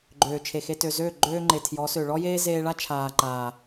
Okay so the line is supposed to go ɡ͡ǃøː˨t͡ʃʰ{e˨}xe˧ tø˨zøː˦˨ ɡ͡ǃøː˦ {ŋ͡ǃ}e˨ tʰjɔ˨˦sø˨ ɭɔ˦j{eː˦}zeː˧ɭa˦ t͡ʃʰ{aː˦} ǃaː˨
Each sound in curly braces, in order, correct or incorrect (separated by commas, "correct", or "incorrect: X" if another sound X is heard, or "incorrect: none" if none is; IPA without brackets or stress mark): correct, correct, correct, incorrect: aː˨